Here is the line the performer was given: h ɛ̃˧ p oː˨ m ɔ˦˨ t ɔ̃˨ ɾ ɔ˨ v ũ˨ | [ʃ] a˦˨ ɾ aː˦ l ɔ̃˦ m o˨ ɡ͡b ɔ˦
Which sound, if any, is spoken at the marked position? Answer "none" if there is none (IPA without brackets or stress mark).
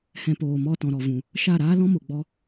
ʃ